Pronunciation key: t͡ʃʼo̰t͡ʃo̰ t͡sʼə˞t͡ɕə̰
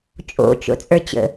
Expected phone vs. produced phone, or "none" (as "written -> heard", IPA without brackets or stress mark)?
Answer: none